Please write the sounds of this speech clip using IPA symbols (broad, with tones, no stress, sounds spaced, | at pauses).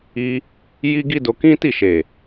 i˧ | j i˦ ɡ i˦ d o˧ k ĩ˦ t i˦˨ ʃ e˨